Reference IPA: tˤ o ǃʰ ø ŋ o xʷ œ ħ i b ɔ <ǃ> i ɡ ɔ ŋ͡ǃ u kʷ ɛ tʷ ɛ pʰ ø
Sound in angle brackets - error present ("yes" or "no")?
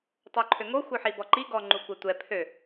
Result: no